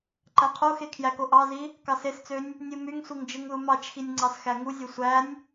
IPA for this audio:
ǃ æ qʰ o x e kʰ j æ k o ʔ ɑ z i | k ɑ s e s t͡s ø nʲ | nʲ u m y ŋ sʷ i ŋ d͡ʒ ɯ ŋ ð u m ɑ t͡ʃ x i nʲ ŋ͡ǀ ɑ s x æ ŋ u zʲ o sʷ æ nʲ

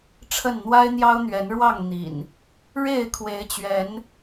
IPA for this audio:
ʈ͡ʂʰ ə˥˨ n n̪ w a˦ ɪ̯ n̪ j ɑ˦ ʊ̯ n̪ ɥ ɛ˨˦ n ɻ w ɑ˥˨ ŋ n̪ ḭ˨˩ n | ɻ e˥˨ ɪ̯ kʰ w e˨˦ ɪ̯ t͡ɕ ɥ ɛ˨˦ n

